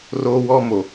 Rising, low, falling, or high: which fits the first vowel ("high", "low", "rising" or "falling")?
high